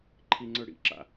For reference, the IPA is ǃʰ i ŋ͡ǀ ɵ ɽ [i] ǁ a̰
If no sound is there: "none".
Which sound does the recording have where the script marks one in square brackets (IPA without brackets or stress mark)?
ḭ